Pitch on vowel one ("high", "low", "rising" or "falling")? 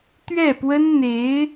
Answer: falling